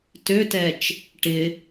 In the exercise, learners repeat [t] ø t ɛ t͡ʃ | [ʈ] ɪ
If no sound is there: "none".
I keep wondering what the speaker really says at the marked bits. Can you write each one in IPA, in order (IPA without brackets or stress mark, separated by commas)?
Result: t, ʈ